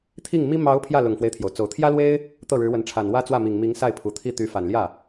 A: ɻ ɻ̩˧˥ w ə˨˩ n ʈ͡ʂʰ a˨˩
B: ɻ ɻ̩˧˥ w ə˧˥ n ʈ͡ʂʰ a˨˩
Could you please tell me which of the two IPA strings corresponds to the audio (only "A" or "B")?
B